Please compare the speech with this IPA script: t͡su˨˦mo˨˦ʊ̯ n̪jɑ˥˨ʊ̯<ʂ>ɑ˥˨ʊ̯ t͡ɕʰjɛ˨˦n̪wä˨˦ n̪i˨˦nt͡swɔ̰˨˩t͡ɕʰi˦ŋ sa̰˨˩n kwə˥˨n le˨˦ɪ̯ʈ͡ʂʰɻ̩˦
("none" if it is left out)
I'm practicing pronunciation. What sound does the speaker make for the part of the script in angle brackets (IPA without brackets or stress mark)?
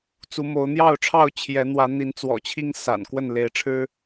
ʈ͡ʂʰ